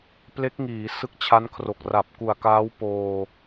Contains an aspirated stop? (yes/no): yes